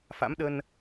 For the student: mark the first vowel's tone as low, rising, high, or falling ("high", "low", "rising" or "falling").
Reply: rising